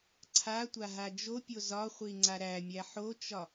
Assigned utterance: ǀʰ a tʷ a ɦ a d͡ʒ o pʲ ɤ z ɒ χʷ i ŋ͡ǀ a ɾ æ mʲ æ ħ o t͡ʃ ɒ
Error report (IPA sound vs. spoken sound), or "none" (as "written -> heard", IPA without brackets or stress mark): ɤ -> o